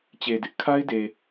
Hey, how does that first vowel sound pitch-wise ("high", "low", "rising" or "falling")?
low